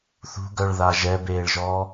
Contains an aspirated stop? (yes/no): no